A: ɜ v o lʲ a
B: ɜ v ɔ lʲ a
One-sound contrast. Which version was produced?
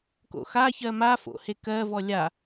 B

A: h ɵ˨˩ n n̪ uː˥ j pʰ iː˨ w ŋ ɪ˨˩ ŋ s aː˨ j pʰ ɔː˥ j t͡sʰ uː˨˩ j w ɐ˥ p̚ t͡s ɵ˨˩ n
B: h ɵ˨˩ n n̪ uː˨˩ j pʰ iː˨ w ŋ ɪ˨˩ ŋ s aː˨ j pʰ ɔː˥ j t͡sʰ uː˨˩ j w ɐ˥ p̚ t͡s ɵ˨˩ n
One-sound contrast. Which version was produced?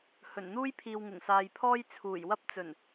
A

